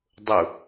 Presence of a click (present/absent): absent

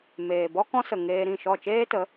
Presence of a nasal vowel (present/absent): present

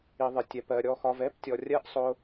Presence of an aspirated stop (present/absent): absent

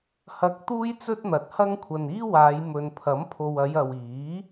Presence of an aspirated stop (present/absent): present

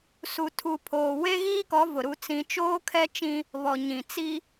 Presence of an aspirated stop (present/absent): present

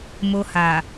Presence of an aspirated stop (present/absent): absent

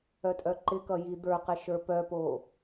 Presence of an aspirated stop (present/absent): absent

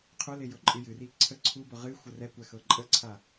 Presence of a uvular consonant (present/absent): present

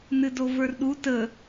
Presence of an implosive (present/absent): present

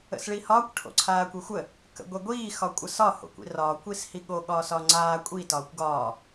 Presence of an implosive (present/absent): present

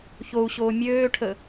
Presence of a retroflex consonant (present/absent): present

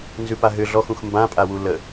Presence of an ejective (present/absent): present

